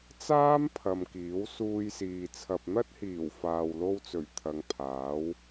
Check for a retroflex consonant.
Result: absent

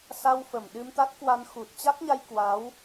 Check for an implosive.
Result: present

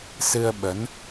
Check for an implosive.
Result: present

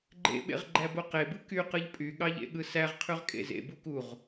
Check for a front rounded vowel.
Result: present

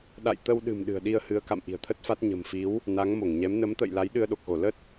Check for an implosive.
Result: present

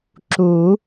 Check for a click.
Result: present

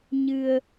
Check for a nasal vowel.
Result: absent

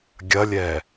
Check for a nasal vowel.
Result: absent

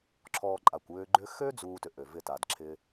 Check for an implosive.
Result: absent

